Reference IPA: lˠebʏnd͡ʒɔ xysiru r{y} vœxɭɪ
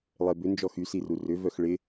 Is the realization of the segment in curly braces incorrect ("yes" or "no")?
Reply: yes